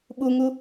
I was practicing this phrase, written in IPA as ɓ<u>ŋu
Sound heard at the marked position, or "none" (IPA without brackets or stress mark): u